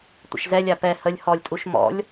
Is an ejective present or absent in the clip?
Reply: present